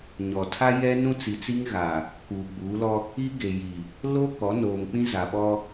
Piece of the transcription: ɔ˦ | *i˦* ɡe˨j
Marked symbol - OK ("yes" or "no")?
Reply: yes